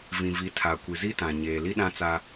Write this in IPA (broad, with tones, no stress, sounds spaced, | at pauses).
v ĩ˨ v i˨˦ tʰ a˨ kʷ i˨ z i˦ t ã˨ ɲ eː˨ l i˦ ɗ ã˦ t͡s a˦